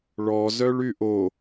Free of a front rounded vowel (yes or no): no